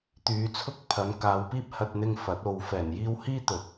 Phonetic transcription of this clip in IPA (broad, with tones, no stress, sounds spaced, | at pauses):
t̪ yː˨˧ t͡sʰ ʊ˥ k̚ pʰ ɐ˨˧ n k aː˨˧ w p iː˥ p̚ h ɐ˧ t̚ n̪ ɪ˧ ŋ f ɐ˨˥ t̚ o˧ w f ɛː˨˩ n j iː˧ w h iː˥ t̪ ɵ˨˥ t̚